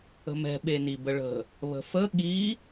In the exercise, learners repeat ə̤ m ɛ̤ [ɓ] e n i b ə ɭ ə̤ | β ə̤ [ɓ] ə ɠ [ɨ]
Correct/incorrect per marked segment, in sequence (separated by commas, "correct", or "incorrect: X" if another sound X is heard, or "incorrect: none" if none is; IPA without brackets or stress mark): correct, incorrect: f, incorrect: i